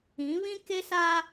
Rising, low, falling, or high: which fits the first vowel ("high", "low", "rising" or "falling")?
rising